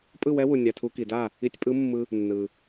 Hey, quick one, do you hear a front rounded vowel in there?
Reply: no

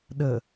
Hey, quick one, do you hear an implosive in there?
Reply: yes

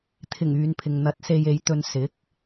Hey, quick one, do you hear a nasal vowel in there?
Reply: no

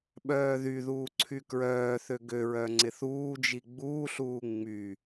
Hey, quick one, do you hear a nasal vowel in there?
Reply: no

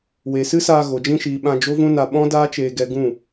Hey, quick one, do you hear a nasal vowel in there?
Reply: yes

